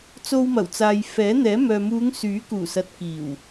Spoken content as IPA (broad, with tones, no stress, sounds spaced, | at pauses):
t͡s o˧ w m ɐ˨˩ w t͡s aː˨ j f ɛː˨˥ n̪ ɛː˨˥ m œː˨ m uː˨˧ ŋ s yː˨˥ k uː˨˩ s ɐ˨ t̚ k iː˨˩ w